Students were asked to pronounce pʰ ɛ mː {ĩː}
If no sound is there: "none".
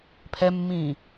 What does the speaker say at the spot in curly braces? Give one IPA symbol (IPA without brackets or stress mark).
ĩː